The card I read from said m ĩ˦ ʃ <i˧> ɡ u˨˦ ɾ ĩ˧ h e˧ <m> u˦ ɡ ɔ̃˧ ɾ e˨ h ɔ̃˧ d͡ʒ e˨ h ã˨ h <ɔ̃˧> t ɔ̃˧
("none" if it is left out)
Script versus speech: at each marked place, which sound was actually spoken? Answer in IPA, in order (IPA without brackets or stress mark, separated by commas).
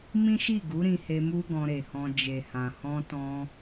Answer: i˦˨, m, ɔ̃˧